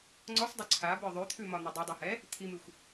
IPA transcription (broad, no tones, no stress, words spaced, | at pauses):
ŋ͡ǀɔsˤdˤʏ ǀʰabə˞ ðˤʉt̪ʰʉmɒn̪i dˤʉdˤɛhɛ | t̪ʰimʉxʷ